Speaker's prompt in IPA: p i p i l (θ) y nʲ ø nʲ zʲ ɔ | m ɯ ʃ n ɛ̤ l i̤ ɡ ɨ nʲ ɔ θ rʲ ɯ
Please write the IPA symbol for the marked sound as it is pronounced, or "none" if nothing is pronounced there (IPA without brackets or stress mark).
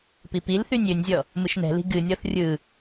θ